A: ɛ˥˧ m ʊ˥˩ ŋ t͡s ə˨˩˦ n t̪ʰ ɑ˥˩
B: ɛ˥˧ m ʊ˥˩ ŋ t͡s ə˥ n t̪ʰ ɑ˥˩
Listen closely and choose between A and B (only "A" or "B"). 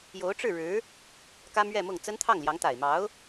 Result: B